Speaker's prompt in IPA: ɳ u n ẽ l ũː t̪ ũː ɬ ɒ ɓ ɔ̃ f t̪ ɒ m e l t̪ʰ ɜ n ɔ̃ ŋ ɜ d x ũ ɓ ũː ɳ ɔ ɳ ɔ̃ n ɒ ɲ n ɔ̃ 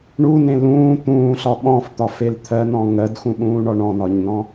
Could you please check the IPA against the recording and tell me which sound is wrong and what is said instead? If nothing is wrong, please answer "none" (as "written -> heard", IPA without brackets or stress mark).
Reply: m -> f